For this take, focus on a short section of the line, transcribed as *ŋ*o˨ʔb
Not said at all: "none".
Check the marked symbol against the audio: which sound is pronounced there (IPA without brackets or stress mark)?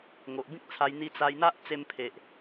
ŋ